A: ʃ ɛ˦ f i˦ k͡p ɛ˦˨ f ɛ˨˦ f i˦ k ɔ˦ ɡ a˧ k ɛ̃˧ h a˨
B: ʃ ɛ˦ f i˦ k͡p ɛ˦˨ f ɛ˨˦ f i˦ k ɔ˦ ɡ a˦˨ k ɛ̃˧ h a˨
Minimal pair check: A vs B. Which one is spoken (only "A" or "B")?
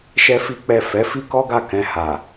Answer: B